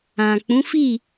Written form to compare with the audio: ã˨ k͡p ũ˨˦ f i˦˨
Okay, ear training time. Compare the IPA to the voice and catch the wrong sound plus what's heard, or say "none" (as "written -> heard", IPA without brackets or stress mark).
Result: none